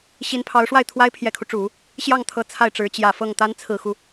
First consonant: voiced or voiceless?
voiceless